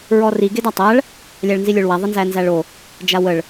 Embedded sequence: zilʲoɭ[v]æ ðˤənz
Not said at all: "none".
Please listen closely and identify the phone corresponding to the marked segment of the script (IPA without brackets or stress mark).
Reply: w